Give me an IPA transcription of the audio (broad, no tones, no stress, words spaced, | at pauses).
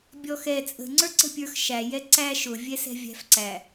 bʲɔxɛ t͡sʼə̤ŋ͡ǀə˞ǀə̤pʲə˞x ʃæjɛ ǀæ ʃʊvʲɛ sɛ̤vʲæ̤fǀæ